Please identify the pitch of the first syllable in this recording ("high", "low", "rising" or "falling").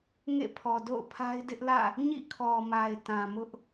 falling